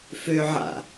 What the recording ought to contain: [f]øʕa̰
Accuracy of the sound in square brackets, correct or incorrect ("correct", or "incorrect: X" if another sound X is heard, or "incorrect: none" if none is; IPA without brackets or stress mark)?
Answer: correct